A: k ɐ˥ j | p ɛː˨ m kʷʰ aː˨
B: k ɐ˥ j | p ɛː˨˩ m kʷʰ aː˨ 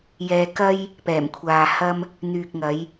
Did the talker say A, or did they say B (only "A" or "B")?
B